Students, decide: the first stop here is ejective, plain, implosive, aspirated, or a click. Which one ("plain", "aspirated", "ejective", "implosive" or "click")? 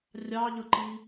click